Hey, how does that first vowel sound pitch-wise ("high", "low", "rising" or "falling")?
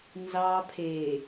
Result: low